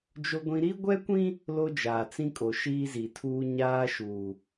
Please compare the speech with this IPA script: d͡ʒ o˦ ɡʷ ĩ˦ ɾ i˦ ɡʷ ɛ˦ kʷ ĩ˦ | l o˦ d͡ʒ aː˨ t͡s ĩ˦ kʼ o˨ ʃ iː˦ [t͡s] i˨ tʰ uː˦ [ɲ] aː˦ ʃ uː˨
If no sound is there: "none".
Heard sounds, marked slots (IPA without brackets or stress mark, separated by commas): z, ɲ